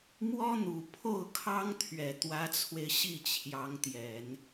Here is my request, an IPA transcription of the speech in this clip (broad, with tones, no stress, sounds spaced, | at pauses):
m w ɔ˥ n̪ u˨˩ pʰ o˥˩ ʊ̯ kʰ ɑ˥ ŋ t̪ʰ ɥ ɛ˨˩ t̪ w ä˧˥ t͡sʰ w e˧ ɪ̯ ɕ i˥˩ t͡ɕʰ j ɑ˧˥ ŋ t̪ j ɛ˨˩˦ n